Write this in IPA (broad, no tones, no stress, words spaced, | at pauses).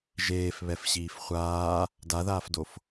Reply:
ʒeːfβɛfɕiːf χʷaː | daðaːfdof